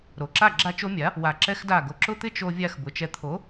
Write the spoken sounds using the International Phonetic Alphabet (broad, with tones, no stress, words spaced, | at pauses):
ɾo˩ǁa˥˩ ɡ͡ǁa˥t͡ʃo˥ mʲa˩˥ | wa˧ǁɛ˥xda˥˩ ɡo˧ǁʊ˥t̪ɪ˥ t͡ʃo˧vʲa˧x bʊ˩˥t͡ʃɛ˧ t̪ʰo˩˥